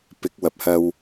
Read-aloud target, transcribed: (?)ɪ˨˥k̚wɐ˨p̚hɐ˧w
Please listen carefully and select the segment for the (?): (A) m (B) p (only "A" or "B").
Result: B